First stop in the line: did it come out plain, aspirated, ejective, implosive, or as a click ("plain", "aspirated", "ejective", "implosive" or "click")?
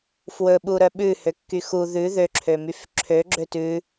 implosive